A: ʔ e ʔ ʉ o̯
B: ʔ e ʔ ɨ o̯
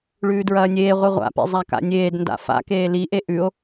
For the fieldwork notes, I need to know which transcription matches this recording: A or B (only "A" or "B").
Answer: A